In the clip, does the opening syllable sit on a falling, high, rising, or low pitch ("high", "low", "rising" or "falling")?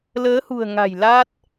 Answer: rising